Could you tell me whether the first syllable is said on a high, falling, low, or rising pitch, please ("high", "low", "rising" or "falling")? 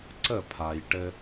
falling